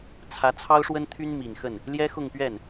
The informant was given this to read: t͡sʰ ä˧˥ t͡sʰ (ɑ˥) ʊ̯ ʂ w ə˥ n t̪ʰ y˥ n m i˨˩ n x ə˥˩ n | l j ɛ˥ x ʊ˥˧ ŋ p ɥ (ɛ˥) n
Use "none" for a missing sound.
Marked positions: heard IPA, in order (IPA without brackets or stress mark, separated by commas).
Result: ɑ˥, ɛ˥˩